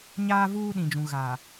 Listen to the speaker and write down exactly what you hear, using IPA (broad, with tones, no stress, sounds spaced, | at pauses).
ɲ aː˦ v uː˦ ɗ ĩ˨ d͡ʒ ũ˨ ɣ a˨